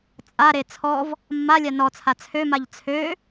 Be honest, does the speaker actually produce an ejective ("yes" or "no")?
yes